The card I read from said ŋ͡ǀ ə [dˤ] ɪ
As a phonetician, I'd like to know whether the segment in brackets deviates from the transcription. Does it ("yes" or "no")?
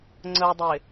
no